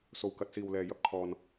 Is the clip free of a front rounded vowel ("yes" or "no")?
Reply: yes